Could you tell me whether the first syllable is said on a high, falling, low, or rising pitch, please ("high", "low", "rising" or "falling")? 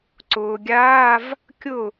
low